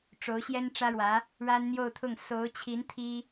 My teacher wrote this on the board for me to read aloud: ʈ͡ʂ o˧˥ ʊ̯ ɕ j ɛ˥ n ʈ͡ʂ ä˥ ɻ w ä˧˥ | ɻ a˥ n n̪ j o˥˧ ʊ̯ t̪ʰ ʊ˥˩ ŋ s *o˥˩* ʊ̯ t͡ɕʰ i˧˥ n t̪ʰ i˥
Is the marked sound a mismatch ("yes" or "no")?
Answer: yes